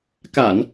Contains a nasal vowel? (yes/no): no